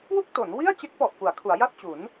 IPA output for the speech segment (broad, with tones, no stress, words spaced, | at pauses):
wu˥˩k̚to˩˦nwi˥˩a̯t͡ɕe˦˥k̚ pɔ˨˩ʔpu˩˦a̯kʰu˩˦a̯ ja˥˩t̚t͡ɕu˩˦n